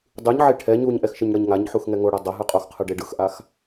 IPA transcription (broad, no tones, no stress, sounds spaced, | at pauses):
dˤ ɯ ɲ ʕ e ʈʰ ɛ ɲ u ɲ ʔ ɛ x ʃ ɯ ɲ ɽ ʌ ɲ ŋ a ɲ ħ u x ŋ ɛ ŋ o ɽ a dˤ ʌ ɦ ɯ qʼ o x qʰ ɯ ɖ e ɖ ɯ x ʔ a x